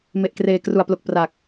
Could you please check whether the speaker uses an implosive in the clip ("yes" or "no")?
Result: no